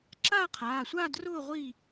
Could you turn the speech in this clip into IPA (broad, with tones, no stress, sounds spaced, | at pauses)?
ǁ a˥˨ qʰ aː˩˧˩ sʷ a˥˨ d r ʊː˥˨ ʁʷ i˥˨